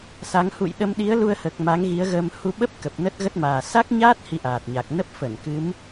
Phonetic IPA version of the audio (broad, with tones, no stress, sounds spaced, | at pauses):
s a˨˦ ŋ h ṵ˧˨ j ɗ ə˧ m ɗ i˨˦ ə̯ l u˧ ə̯ h əː˨˩ k̚ m a˨˦ ŋ ɣ i˨˦ ə̯ ɣ əː˧ m h u˧ ɓ ə˦˥ p̚ k ə˨˩ p̚ n ə˦˥ t̚ ɣ ə˦˥ t̚ m aː˨˩ s a˦˥ k̚ ɲ aː˦˥ t̚ h i˧ ʔ aː˨˩ t̚ ɲ a˨˩ k̚ n ə˦˥ p̚ f ə˧˩ n k ɨ˨˦ m